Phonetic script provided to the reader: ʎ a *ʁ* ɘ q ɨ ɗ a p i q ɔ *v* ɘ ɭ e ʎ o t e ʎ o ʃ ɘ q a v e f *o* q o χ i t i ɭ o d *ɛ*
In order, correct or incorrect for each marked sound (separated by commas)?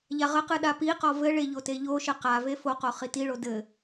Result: correct, correct, correct, incorrect